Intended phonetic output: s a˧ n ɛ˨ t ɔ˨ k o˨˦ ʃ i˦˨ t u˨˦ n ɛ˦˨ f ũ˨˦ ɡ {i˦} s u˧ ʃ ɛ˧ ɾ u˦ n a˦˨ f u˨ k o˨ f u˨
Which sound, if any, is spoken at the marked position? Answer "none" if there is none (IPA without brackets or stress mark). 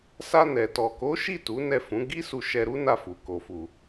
i˦